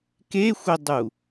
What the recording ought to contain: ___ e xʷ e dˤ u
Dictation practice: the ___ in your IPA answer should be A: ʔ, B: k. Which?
B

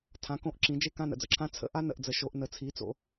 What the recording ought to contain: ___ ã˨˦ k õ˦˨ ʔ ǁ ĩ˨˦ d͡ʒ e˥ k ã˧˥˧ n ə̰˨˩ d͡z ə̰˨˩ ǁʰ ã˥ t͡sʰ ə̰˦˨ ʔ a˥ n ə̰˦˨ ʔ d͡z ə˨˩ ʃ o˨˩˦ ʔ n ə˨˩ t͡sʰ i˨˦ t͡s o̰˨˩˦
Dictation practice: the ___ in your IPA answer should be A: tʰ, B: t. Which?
A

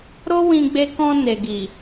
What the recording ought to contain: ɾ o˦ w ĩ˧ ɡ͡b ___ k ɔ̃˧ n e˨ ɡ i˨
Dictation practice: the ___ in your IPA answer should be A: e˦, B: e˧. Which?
B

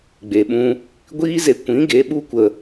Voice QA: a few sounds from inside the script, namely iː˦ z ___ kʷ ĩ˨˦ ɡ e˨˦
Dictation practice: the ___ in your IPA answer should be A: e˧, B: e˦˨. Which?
A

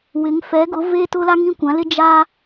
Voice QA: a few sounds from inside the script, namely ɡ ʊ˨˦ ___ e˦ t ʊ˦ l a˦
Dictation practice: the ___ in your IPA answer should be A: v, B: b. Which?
A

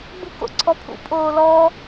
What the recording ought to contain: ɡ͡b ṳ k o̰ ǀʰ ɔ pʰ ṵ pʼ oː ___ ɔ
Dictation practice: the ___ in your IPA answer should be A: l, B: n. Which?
A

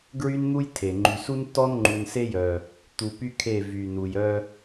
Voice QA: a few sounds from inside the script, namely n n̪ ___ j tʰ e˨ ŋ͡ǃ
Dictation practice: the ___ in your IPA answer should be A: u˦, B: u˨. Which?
A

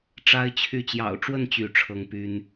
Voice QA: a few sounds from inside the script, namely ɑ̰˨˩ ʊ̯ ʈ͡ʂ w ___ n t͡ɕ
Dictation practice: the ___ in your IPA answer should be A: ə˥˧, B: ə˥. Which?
A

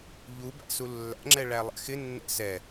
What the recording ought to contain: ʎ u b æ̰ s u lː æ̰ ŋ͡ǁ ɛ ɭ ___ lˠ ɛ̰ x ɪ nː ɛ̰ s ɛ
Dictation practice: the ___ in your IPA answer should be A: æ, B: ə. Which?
A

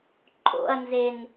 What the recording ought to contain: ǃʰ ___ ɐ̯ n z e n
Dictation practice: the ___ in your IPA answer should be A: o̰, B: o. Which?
A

